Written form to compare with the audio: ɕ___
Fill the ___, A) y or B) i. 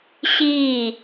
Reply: B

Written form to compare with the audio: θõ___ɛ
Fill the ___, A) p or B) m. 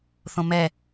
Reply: B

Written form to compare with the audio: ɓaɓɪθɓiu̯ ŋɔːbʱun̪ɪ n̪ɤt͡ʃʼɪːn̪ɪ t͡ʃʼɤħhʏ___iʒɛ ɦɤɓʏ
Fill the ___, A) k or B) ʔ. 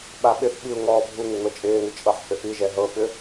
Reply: B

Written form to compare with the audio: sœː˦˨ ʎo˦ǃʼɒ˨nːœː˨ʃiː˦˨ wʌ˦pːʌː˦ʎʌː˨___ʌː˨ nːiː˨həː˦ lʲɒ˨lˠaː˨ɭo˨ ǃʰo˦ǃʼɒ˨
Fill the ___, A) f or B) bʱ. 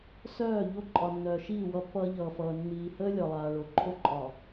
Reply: A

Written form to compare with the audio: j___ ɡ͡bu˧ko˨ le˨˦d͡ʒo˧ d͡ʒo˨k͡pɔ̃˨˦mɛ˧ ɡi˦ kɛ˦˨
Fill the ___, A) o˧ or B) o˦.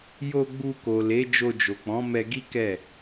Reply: A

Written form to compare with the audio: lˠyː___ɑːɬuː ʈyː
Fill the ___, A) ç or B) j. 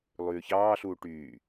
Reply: A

